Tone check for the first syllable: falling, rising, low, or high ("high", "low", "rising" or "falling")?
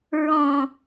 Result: low